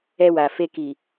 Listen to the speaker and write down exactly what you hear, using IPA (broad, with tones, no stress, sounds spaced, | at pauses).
ɛ˧ w a˨ f e˧ k i˨